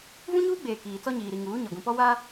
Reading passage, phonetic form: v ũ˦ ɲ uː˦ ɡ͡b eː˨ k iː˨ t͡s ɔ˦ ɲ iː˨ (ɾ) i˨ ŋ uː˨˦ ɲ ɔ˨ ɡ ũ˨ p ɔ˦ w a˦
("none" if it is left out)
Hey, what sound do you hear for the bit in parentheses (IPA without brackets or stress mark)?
ɾ